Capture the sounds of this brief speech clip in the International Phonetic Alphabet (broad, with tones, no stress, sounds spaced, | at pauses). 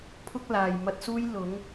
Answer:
pʰ ʊ˥ k̚ l aː˨ j m ɐ˧ t̚ s uː˥ j l ʊ˨˥ ŋ